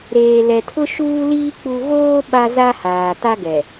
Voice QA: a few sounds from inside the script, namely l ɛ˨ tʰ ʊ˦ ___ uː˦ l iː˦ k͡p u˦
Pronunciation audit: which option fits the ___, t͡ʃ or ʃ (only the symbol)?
ʃ